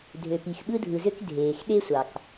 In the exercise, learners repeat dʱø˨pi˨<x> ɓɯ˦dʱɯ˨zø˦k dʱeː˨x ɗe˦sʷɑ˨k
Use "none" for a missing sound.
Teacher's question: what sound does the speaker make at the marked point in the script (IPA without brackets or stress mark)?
x